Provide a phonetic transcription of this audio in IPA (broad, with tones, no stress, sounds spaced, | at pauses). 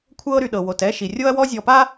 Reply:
kʷʰ ɤ˦ ɾ y˨ ɗ ɤ˨ w o˨ t ɛ˦ ʃ i˨ rʲ o˦ ɐ̯ w ɔ˦ zʲ ɔ˨ p a˦